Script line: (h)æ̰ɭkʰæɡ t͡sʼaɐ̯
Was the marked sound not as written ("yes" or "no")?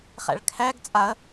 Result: yes